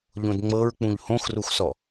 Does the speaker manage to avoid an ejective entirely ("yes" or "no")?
yes